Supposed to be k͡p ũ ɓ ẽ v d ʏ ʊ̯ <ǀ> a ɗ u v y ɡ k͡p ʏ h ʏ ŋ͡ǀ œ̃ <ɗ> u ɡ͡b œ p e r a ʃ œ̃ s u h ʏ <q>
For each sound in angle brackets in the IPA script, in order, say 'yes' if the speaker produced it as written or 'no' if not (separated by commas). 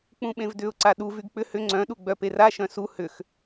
yes, yes, no